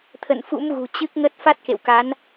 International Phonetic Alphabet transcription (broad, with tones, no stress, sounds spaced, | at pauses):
t̪ʰ ə̰˧˨ n f ṵ˧˥ m ɣ ṳ˨˩ t͡ɕ ɨ˦˥ k̚ ŋ ə˦˥ t̚ f a˦˥ t̚ k ḛ˧˨ w k a˨˦ n